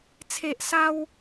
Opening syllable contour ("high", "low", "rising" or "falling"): high